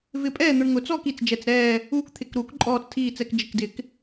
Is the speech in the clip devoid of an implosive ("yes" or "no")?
yes